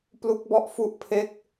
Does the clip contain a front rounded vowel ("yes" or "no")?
no